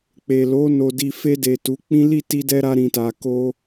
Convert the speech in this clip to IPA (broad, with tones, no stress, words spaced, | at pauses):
k͡pe˨lo˨˦ no˧di˧ fe˧de˨ tu˨˦k͡pĩ˦ li˦˨ti˧dɛ˧ ɾa˧ɾĩ˨ta˨ko˧